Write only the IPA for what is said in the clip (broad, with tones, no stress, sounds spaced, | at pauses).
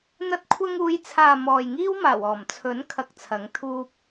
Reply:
n̪ ɐ˧ t̚ kʷʰ ɐ˧ ŋ uː˨˧ j t͡sʰ aː˨ m ɔː˨ j ŋ iː˥ w m aː˨˩ w ɔː˨˩ m t͡sʰ ɵ˨˥ n kʰ ɐ˧ k̚ t͡sʰ ɐ˨˥ ŋ t̪ʰ uː˧ p̚